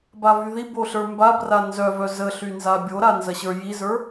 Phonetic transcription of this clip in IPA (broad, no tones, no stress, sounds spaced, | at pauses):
b a v y ð i b o ɬ ə˞ m b a b r a n z œ v œ z ə ɬ y n z a bʲ o ɾ a n z ɐ ɕ ə˞ j i z ə˞